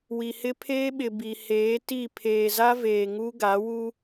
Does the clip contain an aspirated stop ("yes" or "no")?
yes